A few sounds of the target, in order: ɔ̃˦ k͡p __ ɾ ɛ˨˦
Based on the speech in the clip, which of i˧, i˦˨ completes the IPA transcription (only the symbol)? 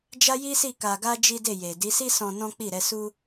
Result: i˦˨